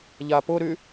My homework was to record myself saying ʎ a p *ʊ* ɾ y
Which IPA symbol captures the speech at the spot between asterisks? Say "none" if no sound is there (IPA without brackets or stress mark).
ʊ